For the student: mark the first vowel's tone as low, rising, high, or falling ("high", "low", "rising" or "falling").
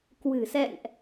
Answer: low